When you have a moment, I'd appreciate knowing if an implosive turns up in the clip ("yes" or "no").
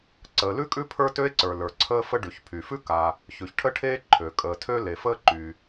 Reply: no